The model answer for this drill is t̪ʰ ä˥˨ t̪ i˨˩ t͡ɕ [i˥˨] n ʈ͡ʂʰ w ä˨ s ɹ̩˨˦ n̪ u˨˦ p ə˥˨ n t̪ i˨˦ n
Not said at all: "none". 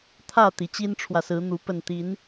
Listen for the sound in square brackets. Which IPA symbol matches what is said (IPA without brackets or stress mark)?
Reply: i˦